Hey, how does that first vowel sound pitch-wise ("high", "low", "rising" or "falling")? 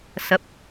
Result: rising